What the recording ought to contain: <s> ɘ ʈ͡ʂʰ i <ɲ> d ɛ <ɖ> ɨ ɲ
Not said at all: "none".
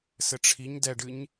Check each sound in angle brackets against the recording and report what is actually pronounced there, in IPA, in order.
s, ɲ, ɖ

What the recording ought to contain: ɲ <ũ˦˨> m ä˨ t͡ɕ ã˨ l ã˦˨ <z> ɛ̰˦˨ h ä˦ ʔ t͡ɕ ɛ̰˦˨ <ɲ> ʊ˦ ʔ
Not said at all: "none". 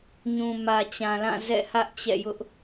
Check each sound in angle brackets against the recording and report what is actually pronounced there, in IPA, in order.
ũ˨, z, j

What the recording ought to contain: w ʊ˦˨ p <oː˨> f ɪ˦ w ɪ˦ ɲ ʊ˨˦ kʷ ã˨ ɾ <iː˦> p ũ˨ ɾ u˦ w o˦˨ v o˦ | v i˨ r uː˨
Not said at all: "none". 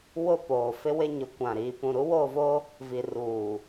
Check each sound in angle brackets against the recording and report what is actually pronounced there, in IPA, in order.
oː˨, iː˨

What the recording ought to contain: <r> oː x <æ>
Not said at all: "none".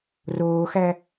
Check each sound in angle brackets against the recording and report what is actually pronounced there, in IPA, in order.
r, æ

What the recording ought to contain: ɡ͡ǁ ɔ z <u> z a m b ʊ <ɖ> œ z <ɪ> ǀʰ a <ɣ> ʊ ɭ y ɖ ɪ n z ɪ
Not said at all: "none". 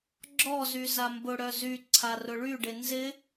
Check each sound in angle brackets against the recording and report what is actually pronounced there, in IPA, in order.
y, ɽ, y, r

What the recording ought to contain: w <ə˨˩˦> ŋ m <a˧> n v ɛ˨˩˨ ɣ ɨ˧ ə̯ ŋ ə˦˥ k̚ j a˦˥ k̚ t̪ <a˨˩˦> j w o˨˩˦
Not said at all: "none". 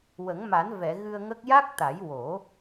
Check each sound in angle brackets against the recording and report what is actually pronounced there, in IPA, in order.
ə˨˩˦, a˨˩˦, a˨˩˦

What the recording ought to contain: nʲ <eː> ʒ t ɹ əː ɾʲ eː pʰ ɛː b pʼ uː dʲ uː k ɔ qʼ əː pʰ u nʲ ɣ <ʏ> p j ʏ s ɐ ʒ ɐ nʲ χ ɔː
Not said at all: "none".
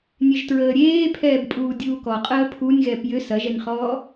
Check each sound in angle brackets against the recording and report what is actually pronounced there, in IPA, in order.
e, ɛ

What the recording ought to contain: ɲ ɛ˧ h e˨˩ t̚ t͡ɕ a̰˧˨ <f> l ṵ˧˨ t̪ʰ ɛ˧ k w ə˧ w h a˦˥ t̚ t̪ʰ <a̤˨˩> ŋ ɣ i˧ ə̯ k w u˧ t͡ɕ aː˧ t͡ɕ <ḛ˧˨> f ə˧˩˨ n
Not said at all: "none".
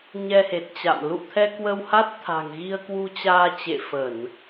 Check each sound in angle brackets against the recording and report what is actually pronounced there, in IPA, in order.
m, a̤˨˩, ḛ˧˨

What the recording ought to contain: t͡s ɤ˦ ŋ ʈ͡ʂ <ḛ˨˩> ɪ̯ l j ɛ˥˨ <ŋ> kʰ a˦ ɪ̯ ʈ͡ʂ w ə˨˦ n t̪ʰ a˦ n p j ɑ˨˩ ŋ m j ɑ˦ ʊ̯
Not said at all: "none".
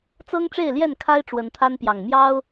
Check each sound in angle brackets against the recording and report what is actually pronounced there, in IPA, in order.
e˥˨, n

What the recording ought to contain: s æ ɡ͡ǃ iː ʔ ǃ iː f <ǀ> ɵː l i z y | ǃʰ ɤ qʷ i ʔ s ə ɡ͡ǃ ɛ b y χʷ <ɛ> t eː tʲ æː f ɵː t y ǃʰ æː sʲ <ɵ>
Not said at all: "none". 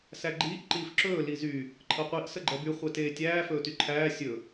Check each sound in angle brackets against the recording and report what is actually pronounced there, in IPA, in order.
ǁ, ɛ, ɵ

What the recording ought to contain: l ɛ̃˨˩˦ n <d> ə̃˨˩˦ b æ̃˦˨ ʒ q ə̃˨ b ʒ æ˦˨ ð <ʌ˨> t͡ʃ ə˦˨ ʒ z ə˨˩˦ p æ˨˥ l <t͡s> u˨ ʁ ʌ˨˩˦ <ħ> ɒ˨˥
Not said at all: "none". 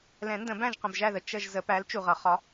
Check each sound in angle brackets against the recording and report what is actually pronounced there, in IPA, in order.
d, ə˨, t͡ʃ, χ

